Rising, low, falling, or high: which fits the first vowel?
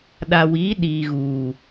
low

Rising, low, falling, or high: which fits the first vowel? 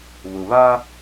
low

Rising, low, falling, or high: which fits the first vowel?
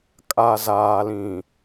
low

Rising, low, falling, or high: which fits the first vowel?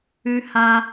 high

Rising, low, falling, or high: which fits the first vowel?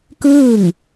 falling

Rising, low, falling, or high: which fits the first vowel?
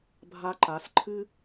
high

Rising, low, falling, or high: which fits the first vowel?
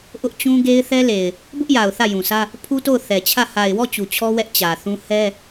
high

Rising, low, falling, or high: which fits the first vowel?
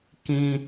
high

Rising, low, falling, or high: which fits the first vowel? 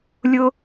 high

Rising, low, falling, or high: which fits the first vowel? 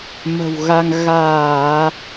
low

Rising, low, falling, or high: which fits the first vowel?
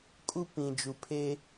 high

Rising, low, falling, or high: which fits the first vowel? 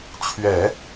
low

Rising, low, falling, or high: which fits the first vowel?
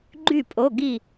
falling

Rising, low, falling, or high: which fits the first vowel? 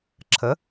rising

